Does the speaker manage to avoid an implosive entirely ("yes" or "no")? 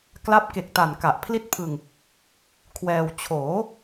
yes